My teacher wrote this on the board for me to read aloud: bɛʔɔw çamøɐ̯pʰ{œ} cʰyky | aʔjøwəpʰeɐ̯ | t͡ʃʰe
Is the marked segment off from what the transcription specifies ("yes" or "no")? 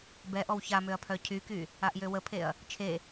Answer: no